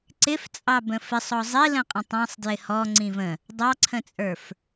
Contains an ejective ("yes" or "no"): yes